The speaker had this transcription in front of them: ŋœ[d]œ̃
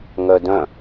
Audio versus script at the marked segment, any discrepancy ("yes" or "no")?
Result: no